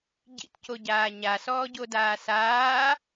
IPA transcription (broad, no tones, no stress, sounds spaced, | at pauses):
ɟ ḭ t c o ɟ aː ɲ a s ɔː ɟ o d aː s aː